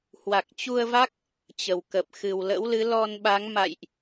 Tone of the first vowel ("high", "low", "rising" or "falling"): low